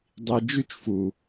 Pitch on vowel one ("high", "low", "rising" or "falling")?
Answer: low